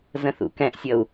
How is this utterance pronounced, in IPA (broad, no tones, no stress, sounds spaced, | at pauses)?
z ə̃ θ ṵ k ɛ̃ ʔ sʲ ʌ u̯